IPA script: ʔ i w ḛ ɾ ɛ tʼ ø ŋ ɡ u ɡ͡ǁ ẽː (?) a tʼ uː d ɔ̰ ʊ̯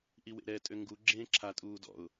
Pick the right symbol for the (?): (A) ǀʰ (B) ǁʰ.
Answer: B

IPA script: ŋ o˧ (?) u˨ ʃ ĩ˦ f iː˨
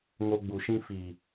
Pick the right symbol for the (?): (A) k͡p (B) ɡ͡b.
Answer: B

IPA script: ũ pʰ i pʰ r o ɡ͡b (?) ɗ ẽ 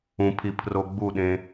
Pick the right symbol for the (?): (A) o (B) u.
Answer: B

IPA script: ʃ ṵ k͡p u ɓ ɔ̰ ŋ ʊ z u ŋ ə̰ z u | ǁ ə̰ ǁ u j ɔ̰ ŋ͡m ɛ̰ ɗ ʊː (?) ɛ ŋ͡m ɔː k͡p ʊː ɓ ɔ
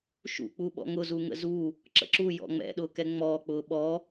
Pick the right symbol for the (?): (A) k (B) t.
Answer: A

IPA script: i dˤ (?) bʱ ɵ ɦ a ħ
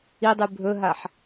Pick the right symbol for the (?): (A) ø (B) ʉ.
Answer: B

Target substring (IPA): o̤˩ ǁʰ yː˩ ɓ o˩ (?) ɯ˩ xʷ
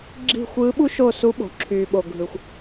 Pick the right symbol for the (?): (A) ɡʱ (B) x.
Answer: A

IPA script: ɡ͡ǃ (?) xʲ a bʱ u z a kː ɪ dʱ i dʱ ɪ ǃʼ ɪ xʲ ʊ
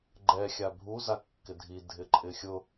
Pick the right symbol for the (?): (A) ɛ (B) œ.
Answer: A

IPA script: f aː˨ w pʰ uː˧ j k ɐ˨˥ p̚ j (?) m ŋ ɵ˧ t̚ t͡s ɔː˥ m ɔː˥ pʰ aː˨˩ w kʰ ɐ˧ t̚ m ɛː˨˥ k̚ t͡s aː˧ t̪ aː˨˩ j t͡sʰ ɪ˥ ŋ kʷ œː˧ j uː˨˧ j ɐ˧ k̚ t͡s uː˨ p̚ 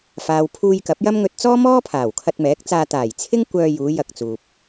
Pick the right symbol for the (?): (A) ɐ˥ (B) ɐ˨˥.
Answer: A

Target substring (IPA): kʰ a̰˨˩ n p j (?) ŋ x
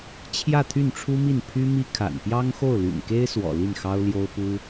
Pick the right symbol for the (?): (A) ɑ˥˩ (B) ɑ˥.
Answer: B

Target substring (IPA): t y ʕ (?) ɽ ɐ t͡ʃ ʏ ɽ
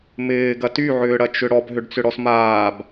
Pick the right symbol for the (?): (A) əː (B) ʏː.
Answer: B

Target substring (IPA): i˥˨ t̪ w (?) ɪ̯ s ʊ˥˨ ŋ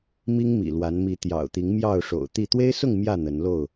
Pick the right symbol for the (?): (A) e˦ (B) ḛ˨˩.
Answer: A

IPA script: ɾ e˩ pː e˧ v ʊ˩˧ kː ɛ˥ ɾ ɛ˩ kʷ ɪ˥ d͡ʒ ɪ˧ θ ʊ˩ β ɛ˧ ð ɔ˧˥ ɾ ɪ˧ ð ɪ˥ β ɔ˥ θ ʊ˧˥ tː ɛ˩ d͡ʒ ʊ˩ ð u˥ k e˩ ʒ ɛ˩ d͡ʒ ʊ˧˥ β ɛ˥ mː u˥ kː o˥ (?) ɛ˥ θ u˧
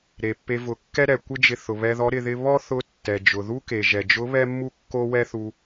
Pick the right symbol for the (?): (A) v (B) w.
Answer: B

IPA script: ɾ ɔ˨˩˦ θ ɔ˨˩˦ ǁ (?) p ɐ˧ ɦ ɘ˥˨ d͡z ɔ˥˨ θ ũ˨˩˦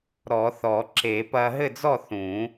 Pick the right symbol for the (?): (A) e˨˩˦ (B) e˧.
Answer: A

